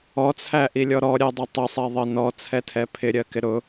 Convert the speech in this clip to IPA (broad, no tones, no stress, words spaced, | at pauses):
ɔt͡sʰæʔilʲɔ ɾɔɾʲɛdˤʊ tˤɪsˤɛðˤɜ nɔt͡sʰɛtʰɛ pʰɪɾʲɜkɪ ɾʊ